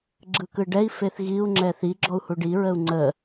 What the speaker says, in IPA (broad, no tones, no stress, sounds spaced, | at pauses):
ɡ͡ǁ ɯ k ɯ ɖ ɛ i̯ f e θ ɣ i u̯ ŋ͡ǁ ɛ θ i ɡ͡ǁ ɔ u̯ h u ɖ i ɹ ə u̯ ŋ͡ǀ ə